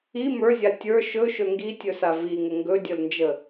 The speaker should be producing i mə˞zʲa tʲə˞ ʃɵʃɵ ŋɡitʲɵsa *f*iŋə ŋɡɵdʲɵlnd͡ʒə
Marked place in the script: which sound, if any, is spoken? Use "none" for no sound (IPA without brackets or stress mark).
v